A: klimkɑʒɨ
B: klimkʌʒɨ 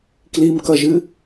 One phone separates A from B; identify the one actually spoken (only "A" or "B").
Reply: B